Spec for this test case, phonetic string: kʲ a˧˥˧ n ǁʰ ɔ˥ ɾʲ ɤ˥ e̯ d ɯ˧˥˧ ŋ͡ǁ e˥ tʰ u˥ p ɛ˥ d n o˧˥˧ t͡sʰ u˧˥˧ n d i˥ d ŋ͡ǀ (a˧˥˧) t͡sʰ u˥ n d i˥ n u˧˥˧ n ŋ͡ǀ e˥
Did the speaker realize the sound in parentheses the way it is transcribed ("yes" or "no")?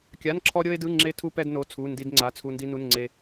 yes